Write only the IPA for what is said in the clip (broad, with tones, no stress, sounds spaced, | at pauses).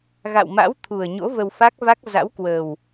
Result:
ɣ a̰˧˨ w m a̰˧˥ w t̪ʰ u˨˩ ə̯ ɲ o̰˧˥ v ə˧ w f a˦˥ k̚ v a˦˥ k̚ z a̰˧˥ w k w ə˨˩ w